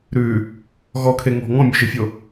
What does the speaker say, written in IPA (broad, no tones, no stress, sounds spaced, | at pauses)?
ɾ ʉ | ɣ ɔ kʰ e ŋ ɔ̤ ŋ ɔ̃ mʲ ø ʒ e fʲ o